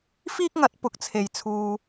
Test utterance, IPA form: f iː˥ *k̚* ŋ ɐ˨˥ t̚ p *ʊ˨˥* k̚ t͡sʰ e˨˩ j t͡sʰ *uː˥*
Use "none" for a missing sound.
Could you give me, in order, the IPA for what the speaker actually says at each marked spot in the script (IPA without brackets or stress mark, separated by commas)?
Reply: k̚, ʊ˨˥, uː˨